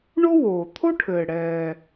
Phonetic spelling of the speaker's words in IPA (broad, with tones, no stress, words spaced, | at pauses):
ɳo˥woː˩ t̪ʰo˥ʈʰɘː˩ ɽɛː˩